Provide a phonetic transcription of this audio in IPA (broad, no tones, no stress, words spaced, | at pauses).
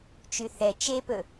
t͡ʃyθɛ t͡ʃepɵ